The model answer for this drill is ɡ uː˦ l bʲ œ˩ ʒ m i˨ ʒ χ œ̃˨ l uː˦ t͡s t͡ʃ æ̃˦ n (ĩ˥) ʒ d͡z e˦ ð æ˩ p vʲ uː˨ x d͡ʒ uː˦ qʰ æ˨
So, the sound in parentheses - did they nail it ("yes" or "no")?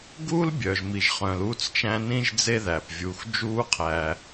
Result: yes